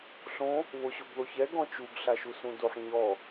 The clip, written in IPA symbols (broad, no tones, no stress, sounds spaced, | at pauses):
ɬ õ | β o ɕ o ɡ ð o ç ɛ ɡ ɔ̃ t͡ʃ u ɡ ɬ a ʃ u s ũ d o ħ ɲ ɔ